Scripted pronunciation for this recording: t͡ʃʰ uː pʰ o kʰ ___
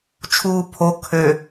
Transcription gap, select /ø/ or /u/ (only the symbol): ø